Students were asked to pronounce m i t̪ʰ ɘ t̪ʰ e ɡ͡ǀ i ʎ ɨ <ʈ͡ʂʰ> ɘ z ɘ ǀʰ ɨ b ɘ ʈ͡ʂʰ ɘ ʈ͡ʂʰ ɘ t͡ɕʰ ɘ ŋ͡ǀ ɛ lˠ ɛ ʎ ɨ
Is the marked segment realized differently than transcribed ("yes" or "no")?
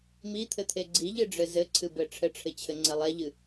yes